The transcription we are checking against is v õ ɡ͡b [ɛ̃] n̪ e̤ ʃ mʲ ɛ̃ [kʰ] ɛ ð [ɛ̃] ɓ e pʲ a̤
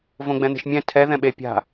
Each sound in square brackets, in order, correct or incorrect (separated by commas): correct, incorrect, correct